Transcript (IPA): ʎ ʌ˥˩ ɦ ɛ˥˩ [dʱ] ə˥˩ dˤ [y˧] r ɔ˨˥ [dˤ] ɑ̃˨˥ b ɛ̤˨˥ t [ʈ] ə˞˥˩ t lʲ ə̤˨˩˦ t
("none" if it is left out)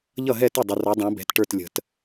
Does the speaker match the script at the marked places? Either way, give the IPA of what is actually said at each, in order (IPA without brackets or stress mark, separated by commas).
t, ɪ˧, dˤ, ʈ